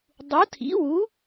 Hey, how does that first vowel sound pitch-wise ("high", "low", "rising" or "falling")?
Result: rising